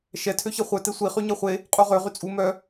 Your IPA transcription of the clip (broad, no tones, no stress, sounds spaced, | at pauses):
ʃ ɛ tʰ ø ç ɛ χʷ œ t e sʷ i χ y ɲ ɛ χʷ e | qʼ u ʁ ø ʁ y t͡sʼ u m œ